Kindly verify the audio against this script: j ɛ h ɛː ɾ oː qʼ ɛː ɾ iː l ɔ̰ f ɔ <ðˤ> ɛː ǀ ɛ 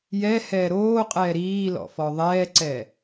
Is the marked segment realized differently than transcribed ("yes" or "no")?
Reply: no